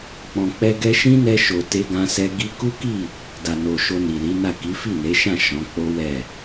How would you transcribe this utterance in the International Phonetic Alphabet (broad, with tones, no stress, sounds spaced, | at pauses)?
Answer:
k͡p ɔ̃˨ k͡p ɛ˧ ɡ ɛ˧ ʃ ĩ˦ n ɛ˧ ʃ o˨ t e˧ ɡ ã˧ s ɛ˧ ɡ i˧ k u˦ k i˦˨ | d a˨ n o˨ ʃ o˧ n i˨ l i˨˦ n a˦˨ k i˨˦ f i˦˨ n e˨˦ ʃ ã˦˨ ʃ ɔ̃˨˦ k͡p o˦ w ɛ˦˨